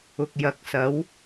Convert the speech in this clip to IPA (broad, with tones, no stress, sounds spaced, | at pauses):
ʊ˨ k̚ j ɐ˨˥ k̚ s ɐ˨˥ w